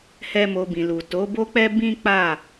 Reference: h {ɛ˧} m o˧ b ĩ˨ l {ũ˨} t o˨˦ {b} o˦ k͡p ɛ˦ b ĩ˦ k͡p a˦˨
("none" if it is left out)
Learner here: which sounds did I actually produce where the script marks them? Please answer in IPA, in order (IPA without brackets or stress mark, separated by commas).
ɛ˦, u˨, b